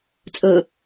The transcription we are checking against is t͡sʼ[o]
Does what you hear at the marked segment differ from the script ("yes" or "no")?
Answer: yes